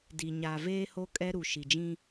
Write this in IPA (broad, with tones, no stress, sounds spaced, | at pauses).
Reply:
d i˨ ɲ a˨ v eː˦ h o˦ kʼ ɛ˦ ɾ u˨ ʃ i˨ d͡ʒ ĩ˦